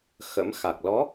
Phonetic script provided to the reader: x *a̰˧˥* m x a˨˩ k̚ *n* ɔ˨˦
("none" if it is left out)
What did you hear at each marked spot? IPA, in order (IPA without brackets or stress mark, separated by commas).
ə̰˧˥, l